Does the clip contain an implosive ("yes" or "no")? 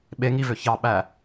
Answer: yes